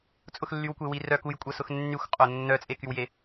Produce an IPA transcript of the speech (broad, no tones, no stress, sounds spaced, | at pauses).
t͡sʼ ʊ x lː y w kʷ e w i r œ k u j kʷʼ ɐ s ʊ x nː y xʷ qʼ o nː œ t͡sʼ e k y w j e